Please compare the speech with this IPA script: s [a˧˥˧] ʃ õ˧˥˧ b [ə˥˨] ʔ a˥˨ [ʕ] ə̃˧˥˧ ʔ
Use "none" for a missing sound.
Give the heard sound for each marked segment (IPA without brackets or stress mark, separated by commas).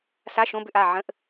a˧˥˧, ʏ˥˨, ʕ